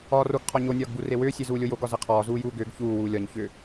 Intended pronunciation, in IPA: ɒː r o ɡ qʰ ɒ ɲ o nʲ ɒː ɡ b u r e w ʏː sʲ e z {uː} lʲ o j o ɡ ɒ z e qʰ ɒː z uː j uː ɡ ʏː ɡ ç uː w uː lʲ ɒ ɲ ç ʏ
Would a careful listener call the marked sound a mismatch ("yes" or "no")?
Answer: no